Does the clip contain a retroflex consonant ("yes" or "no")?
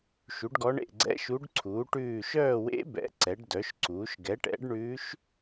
yes